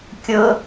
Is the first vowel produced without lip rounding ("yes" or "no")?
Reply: no